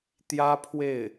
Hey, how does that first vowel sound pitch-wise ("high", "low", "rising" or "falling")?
high